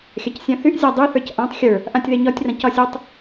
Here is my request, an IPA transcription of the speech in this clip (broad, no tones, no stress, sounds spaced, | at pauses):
xʲ a c sʲ ã θ y ʔ zʲ a dˤ i θ ə˞ c ʔ ã tˤ xʲ ə˞ | ʔ ã tʲ ð e ɲ ɒ tʲ r ã c ɒ sʲ ɔ tˤ